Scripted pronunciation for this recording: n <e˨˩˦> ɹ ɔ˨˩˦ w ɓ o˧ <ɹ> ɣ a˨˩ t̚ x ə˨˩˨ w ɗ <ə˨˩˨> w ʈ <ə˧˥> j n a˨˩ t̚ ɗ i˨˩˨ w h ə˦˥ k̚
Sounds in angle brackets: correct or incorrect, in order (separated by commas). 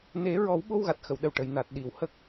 correct, incorrect, incorrect, incorrect